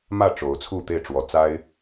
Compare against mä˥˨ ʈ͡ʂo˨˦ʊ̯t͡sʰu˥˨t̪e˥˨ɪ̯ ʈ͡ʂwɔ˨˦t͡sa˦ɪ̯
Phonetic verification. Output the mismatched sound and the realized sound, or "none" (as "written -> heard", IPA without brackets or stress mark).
none